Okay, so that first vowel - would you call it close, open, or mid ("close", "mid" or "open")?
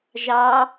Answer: open